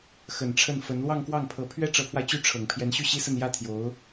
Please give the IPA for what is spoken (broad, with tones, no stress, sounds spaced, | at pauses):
x ə˨˩ n ʈ͡ʂʰ ə˥˩ n f ə˧˥ n l w ɑ˥˧ ŋ k w ɑ˥˩ ŋ pʰ ɤ˧˥ pʰ ɥ ɛ˥ ʈ͡ʂ ɤ˧˥ pʰ w a˧ ɪ̯ t͡ɕ y˥˩ ʈ͡ʂʰ ɤ˨˩ ŋ pʰ j ɛ˧˥ n ɕ y˥˩ ɕ i˥ s ə˥˧ n j ä˥˩ t̪ʰ j o˧˥ ʊ̯